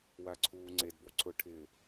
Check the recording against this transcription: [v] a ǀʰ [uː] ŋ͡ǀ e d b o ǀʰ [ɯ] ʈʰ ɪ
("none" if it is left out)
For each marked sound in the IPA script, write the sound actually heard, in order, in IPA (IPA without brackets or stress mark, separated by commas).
w, uː, ʊ